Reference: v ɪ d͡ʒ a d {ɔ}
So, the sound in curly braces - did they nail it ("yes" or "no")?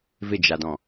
no